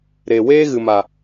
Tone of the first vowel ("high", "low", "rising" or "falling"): low